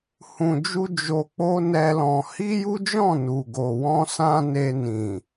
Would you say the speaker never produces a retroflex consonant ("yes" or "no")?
yes